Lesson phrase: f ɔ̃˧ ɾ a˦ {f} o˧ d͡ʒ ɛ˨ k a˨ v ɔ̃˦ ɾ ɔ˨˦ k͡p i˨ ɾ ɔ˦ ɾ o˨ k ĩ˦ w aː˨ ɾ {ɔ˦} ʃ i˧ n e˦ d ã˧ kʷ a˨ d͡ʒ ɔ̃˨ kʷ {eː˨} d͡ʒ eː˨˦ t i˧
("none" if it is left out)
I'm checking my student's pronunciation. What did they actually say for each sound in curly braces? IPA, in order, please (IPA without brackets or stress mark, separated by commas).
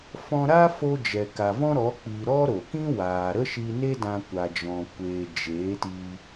f, ə˦, eː˨